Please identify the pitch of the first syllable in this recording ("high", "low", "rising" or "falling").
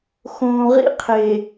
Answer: low